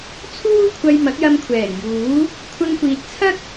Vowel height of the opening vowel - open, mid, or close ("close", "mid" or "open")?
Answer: close